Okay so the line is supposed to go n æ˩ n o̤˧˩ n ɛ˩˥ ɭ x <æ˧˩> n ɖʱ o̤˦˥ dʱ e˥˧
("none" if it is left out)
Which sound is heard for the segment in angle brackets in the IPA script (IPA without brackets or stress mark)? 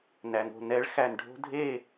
æ˧˩